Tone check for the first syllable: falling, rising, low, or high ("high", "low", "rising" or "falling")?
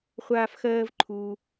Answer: high